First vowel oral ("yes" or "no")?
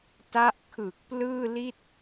yes